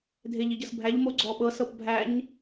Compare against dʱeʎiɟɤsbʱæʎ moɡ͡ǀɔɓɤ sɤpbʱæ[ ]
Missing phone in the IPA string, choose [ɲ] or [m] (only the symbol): ɲ